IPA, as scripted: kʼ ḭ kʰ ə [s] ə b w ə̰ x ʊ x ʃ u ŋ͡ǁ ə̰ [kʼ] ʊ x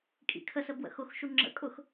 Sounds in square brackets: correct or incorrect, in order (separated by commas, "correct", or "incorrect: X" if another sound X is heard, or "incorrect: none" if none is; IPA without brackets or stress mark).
correct, correct